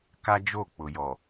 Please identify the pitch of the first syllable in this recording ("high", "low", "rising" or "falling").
high